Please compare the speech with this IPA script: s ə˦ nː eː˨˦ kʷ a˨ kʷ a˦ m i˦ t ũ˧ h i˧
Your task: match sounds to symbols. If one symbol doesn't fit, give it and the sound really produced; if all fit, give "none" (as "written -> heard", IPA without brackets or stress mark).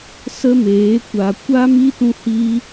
nː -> m